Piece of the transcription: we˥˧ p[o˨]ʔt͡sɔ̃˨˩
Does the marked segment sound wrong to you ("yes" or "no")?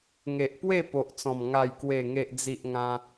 no